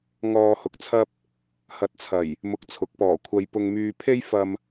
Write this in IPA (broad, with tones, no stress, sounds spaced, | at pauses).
ŋ ɔː˧ h ʊ˨ k̚ t͡sʰ ɐ˥ p̚ | h ɐ˨ t̚ t͡sʰ ɐ˨˩ j | m ʊ˧ k̚ t͡sʰ ʊ˨˥ k̚ p ɔː˨˩ kʷʰ ɐ˧ j p ʊ˨ ŋ m yː˨ pʰ e˥ j f ɐ˨ m